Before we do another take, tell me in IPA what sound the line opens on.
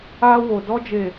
a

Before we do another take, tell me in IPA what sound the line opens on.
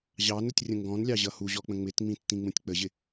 ʑ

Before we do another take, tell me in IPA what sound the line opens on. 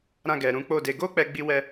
ɾ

